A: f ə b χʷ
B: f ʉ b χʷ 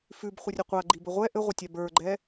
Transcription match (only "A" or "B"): B